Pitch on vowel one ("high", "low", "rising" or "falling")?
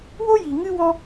high